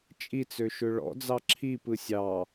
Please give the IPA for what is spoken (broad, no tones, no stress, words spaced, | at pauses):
t͡ʃʼit͡sø ʃʏɭɔ̰ d͡zɑǁʰipɯ sʲɑ